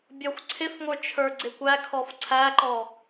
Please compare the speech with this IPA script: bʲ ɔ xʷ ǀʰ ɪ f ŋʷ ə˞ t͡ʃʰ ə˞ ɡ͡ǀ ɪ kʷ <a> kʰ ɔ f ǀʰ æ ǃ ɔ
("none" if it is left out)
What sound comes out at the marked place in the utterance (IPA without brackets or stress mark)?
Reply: æ